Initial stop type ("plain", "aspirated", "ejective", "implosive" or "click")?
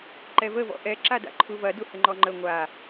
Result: click